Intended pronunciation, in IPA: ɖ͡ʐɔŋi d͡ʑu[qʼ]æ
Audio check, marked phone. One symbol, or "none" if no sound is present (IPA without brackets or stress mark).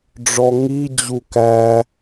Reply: k